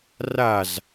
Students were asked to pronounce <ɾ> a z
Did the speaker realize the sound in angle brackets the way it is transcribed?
no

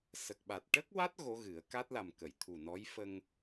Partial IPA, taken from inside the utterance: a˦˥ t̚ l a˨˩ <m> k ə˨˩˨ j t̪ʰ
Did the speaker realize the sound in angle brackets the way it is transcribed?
yes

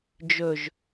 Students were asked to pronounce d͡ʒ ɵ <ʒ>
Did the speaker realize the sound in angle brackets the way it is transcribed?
yes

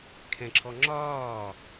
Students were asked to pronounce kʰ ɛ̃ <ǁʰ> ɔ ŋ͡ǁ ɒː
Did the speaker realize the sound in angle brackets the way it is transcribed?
yes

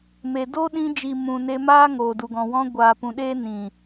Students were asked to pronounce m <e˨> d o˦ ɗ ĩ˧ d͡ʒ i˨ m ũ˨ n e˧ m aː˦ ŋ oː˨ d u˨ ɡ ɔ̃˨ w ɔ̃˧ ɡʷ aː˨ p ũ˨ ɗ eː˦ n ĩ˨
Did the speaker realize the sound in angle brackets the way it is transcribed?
yes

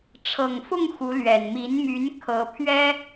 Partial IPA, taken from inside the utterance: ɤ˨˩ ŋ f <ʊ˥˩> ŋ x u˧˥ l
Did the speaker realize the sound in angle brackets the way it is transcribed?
yes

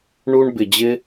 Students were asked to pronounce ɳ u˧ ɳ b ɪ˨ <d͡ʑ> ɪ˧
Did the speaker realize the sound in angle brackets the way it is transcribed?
yes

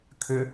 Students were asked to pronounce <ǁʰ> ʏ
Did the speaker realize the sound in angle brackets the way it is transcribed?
no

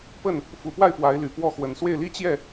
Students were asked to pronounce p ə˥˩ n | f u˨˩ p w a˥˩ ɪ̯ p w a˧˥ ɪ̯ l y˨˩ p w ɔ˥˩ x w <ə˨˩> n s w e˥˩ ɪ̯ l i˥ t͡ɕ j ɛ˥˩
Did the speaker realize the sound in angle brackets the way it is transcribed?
yes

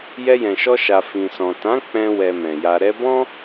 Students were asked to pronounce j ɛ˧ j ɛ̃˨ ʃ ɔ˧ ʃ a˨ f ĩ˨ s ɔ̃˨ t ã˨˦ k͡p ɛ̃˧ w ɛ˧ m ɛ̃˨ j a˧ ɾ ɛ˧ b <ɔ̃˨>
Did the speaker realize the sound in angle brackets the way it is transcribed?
no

